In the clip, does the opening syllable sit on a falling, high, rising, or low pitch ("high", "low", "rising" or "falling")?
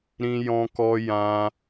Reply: high